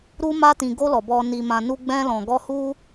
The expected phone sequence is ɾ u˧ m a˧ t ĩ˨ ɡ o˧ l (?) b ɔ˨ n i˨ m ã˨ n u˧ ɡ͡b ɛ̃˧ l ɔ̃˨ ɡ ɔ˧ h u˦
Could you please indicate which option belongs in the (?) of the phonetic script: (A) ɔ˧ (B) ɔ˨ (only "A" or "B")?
B